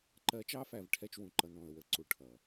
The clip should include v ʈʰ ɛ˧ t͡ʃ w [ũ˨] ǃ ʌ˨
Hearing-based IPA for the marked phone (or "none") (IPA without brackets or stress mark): ũ˨